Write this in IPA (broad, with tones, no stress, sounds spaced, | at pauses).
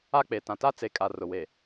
a˦˨ k͡p e˨ t ã˨ t a˦ t͡s e˨˦ kʼ a˨ r ʊ˨ w e˨